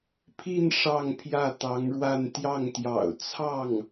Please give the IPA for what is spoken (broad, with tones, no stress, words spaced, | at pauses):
pʰi˥˧n ʂɑ˥˧ŋpʰjä˥˩t̪ɑ˧˥ŋɻwa˥˧n t̪jɑ˥˩ŋt̪jɑ̰˨˩ʊ̯ t͡sʰɑ˥˩ŋ